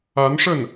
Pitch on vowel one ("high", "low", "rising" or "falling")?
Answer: rising